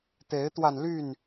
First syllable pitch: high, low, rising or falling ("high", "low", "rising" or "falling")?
rising